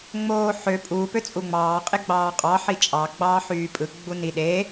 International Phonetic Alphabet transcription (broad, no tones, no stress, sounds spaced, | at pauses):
ŋ͡m oː ħ ø pʼ u p ø t͡sʼ u ŋ͡m ɑː qʼ e ɡ͡b ɑː qʼ ɑ ħ i t͡ʃʼ ɑ ɡ͡b ɑː ħ yː pʼ ɯ ɡ͡b u n i ɗ e